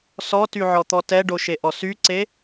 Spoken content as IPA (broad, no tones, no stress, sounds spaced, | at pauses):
s ɔ t y ʕ ɔ t̪ ɔ t ɛ ɖ o ʃ e ʔ ɔ s y ǀ e